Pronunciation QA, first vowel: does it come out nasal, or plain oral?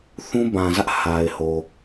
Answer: nasal